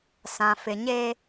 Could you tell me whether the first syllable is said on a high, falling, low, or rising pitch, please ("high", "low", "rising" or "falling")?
low